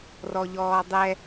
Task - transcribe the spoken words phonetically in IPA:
r ɔ ʎ ɔː dˤ ɛ

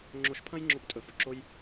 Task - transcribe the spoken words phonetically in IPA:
ŋ͡ǁ o˧ ʃ pʰ ɐ̃˦ j ŋ͡ǁ o˧ p tʼ ɵ˨ f ɵ˨ ǁ o˧ j

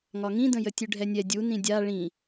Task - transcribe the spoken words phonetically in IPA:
ŋ ɒ ŋ ĩ d ə̃ j ə tʲ ʉ ɖʱ ɛ nʲ ɛ dʲ u n ĩ dʲ a ɭ ĩ

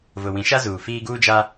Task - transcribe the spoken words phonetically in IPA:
v ʊ˨ w ĩ˨˦ ʃ a˦ z uː˨ f iː˦ ɡ uː˦ d͡ʒ a˦

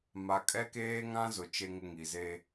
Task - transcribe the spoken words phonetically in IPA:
m a˨ kʼ ɛ˦ k eː˦ ŋ ã˦ z ʊ˨ t͡ʃ e˦ ŋ ɪ˦ ŋ i˨ z e˦

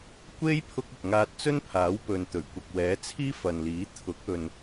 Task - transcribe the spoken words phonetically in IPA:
kʷ e˥ j pʰ ʊ˥ k̚ ɐ˨ k̚ ŋ aː˧ t̚ t͡s ɵ˥ n pʰ aː˨˥ w p ɵ˨ n t̪ ɵ˨˩ ɥ kʷ ɐ˨ k̚ w ɛː˨˥ t͡sʰ iː˥ f ɐ˨ n l iː˨˥ t̪ʰ ʊ˨˥ k̚ ɵ˨ n

